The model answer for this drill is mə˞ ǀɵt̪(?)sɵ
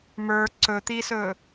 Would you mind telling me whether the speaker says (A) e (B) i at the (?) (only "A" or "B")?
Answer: B